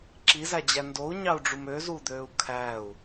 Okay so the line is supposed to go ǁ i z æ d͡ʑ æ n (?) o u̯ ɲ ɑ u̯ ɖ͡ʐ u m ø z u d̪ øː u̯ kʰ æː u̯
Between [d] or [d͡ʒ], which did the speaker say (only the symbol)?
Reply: d